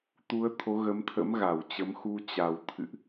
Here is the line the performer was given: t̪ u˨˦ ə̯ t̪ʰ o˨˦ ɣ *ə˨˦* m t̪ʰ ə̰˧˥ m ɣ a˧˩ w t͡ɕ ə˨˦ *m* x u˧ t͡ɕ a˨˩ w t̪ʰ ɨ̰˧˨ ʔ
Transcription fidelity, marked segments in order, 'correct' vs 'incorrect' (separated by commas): correct, correct